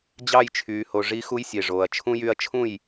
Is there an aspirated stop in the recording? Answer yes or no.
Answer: yes